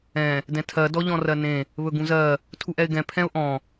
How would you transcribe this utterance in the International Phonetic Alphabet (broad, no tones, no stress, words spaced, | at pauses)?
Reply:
ɛ̃ | dɛ̃tʰɜ dɔʎɔ̃rɜnẽ | βɵɡũzɜ | tʰuʔɛɪ̯ɡɛ̃ pʰɛ̃ʊ̯ʔɔ̃